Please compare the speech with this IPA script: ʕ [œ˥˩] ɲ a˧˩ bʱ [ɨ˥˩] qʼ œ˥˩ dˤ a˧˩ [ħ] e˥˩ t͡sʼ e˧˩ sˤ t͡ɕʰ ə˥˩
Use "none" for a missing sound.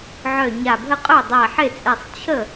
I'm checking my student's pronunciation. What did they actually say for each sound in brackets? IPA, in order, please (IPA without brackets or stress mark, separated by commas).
œ˧˩, ə˥˩, ħ